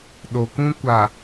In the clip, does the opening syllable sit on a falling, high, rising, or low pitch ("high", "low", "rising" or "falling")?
low